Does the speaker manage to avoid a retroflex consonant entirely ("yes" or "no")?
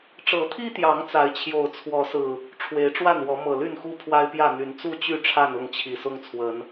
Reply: no